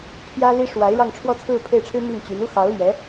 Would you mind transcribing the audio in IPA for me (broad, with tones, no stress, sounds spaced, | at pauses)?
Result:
pʰ j ä˥ l i˥ ʂ w a˧˥ ɪ̯ ɻ ɑ˥˧ ŋ ʈ͡ʂʰ w ɔ˥˧ t͡sʰ ɹ̩˥˧ pʰ e˥˩ ɪ̯ ʈ͡ʂʰ ɻ̩˥ m i˥˩ ŋ t͡ɕ y˧˥ n u˥ x ɑ˧˥ ʊ̯ l ɥ ɛ˧˥